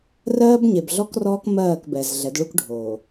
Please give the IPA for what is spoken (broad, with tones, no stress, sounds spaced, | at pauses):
r ɜː˦ b ɲ e˨ b ɮ ɔ˦ k r ɔː˦ k m ɜː˦˨ k b ɛ˨ z ɮ ɛ˨˦ d ɭ u˦ k ɖʱ oː˨